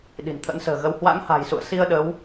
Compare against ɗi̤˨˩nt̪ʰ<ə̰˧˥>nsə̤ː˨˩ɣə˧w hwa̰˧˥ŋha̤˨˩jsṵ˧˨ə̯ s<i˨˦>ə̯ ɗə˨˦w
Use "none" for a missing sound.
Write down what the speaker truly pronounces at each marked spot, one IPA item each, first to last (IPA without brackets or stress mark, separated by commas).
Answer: ə̰˧˥, i˧